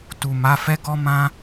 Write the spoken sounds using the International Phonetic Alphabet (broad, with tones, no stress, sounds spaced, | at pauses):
t u˨ m a˨˦ f ɛ˦ ɡ ɔ˦ m ã˦